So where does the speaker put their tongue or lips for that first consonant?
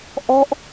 throat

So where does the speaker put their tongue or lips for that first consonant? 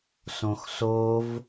tongue tip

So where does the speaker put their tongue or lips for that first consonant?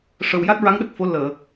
retroflex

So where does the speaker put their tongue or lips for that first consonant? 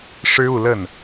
retroflex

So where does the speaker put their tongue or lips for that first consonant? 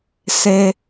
tongue tip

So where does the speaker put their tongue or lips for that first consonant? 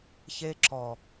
palate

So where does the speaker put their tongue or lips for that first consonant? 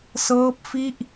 tongue tip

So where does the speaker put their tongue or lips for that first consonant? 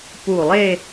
lips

